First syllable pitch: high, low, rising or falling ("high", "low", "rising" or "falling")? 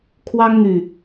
high